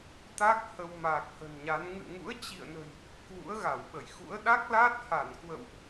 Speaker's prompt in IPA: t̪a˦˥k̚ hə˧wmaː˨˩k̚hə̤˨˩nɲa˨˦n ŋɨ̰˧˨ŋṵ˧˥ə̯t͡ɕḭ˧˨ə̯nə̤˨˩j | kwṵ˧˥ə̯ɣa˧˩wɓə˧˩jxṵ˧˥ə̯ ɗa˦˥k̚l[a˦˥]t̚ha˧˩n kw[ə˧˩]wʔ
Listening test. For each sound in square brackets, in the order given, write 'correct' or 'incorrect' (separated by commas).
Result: incorrect, incorrect